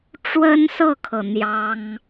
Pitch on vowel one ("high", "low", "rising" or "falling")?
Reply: high